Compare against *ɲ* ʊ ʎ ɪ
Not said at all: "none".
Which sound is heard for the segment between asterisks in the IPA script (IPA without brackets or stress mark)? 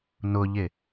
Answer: n